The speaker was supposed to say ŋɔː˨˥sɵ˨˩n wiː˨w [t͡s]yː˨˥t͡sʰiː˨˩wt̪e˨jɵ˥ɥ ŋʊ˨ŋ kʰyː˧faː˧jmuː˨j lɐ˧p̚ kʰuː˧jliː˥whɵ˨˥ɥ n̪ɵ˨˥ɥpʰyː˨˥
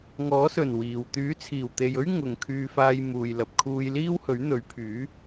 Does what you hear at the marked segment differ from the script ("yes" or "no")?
yes